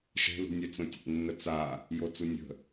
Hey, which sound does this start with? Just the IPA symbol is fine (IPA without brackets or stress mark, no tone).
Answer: ʃ